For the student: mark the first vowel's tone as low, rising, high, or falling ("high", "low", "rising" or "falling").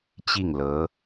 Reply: falling